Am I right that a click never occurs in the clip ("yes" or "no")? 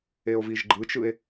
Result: no